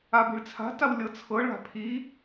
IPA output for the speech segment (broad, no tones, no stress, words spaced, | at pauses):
abi̤ɭt͡sʰa̤taw lʲɤt͡sʰɤɭa̤ pʰi